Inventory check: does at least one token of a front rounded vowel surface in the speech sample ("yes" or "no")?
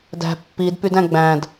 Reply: yes